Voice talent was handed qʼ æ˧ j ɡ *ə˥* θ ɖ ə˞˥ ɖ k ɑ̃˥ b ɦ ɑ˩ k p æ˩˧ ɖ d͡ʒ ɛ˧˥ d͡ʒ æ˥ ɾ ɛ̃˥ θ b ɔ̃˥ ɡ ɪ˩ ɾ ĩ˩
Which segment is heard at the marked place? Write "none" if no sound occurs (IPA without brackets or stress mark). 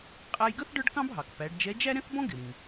ə˥